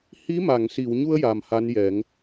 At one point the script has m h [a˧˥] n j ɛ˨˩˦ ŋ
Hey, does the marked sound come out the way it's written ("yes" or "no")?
yes